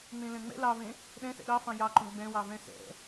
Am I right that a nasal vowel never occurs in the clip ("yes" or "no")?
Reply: no